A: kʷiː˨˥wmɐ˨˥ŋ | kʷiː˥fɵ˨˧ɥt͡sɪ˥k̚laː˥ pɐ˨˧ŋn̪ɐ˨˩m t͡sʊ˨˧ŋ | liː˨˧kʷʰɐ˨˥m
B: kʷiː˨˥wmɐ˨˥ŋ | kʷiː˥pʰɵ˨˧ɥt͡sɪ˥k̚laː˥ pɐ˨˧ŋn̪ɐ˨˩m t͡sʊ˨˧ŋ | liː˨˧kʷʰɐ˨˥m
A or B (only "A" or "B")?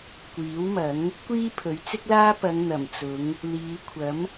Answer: B